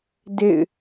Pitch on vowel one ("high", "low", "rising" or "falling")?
falling